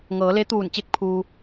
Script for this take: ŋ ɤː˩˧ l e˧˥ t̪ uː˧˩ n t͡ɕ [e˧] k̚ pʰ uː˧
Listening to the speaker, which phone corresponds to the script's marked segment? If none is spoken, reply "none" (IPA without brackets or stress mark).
e˧